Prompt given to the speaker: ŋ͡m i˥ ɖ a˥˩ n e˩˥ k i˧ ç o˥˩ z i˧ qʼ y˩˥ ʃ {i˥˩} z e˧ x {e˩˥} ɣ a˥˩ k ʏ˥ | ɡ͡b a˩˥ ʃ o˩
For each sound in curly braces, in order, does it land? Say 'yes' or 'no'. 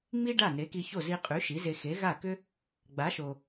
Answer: no, yes

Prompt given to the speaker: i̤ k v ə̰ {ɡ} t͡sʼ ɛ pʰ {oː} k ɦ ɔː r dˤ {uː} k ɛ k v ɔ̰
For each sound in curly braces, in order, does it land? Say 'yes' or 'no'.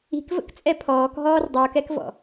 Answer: no, no, yes

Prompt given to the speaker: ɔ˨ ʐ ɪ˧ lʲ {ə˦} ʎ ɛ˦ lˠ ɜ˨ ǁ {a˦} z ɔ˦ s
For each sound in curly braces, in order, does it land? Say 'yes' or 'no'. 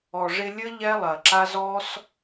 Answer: yes, yes

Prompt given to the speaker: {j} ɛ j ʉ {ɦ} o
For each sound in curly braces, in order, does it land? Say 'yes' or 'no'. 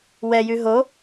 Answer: no, yes

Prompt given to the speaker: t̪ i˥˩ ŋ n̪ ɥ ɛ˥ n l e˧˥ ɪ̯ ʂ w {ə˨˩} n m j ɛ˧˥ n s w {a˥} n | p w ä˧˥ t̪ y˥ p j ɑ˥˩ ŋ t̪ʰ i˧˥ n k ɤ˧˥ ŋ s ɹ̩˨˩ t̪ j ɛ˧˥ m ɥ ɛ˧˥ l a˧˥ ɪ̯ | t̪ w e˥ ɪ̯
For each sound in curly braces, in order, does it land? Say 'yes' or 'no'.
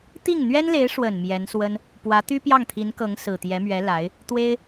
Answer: yes, no

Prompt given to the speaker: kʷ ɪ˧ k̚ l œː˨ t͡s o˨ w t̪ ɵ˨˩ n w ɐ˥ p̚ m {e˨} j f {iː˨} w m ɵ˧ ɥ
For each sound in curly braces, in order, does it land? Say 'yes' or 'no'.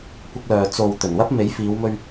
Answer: no, no

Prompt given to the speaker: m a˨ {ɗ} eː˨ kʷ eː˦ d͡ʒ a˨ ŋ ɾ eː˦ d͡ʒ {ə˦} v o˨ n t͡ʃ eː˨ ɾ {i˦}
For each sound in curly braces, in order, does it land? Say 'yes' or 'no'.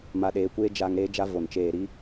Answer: yes, no, yes

